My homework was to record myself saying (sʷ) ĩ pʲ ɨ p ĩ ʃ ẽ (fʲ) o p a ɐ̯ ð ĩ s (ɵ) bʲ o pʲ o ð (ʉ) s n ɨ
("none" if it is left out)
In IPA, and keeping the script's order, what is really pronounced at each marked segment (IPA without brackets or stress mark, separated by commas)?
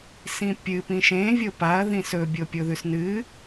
s, vʲ, ɵ, ʉ